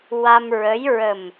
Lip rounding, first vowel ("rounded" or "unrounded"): unrounded